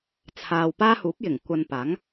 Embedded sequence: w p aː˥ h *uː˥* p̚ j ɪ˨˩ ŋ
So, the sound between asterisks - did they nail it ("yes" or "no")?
no